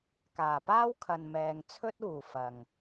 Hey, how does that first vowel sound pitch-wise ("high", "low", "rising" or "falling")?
low